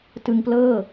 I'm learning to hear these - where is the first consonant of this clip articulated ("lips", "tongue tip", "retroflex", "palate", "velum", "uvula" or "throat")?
tongue tip